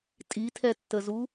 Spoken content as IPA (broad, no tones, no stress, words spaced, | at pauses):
tʼitʰɛtːəzu